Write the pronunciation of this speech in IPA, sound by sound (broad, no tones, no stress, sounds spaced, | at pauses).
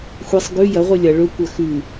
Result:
xʷ e sˤ ɡ ʉ j ɐ ʁʷ ɨ lʲ ɐ ɭ ɵ kʷ ɐ x ʉ